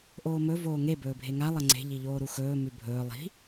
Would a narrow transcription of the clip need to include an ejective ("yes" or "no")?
no